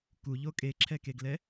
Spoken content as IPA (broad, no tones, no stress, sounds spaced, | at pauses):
k u ʎ o kʼ e ǁʰ ɛ k e ɡ l ɛ